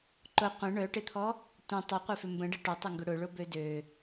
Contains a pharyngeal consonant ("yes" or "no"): no